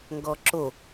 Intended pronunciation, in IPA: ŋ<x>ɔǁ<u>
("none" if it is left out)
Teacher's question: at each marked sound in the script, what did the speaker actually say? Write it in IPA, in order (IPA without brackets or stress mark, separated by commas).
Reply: ɡ, o